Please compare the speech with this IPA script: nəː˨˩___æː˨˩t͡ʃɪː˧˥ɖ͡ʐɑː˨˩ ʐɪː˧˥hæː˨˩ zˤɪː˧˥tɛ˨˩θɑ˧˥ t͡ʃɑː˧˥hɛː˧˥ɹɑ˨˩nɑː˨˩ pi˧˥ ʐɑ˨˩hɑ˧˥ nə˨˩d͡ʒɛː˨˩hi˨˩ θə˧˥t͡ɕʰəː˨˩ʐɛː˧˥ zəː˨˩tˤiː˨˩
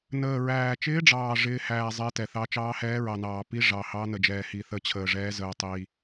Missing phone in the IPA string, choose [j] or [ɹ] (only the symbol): ɹ